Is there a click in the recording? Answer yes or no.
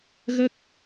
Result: no